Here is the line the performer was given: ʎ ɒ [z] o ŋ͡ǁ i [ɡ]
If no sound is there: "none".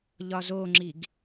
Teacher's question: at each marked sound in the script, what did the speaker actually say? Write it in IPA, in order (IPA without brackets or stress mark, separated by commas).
z, ɡ